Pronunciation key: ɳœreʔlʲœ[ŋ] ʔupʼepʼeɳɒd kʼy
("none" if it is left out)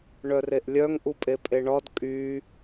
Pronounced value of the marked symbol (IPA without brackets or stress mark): ŋ